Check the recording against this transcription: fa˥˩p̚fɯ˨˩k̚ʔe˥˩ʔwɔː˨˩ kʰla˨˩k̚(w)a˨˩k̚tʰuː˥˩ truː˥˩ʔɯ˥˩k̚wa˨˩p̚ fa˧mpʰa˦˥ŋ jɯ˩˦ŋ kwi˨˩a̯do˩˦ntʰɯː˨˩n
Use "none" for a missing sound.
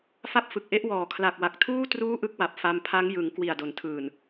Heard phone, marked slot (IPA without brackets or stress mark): w